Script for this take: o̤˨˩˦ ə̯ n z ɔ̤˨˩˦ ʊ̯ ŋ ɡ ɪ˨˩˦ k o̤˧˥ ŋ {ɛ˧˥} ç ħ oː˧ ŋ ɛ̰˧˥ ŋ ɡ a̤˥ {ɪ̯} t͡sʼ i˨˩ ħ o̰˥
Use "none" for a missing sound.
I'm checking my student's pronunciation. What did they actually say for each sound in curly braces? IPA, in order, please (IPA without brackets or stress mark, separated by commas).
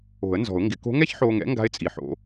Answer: ɛ˥, ɪ̯